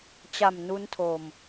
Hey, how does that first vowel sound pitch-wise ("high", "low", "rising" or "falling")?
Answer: low